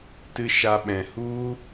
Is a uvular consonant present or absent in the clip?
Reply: absent